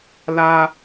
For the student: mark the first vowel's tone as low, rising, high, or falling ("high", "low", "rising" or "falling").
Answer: high